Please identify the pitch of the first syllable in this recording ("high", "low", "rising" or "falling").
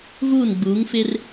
falling